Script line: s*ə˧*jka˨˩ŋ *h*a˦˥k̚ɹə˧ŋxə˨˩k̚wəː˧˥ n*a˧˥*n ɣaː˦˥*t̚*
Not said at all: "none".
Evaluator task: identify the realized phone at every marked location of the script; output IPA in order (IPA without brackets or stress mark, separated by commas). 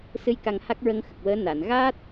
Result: ɨ˧, h, a˨˩˨, t̚